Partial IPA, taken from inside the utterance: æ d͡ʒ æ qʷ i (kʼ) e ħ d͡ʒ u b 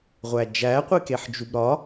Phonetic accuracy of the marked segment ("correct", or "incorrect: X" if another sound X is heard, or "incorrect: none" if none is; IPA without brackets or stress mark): incorrect: k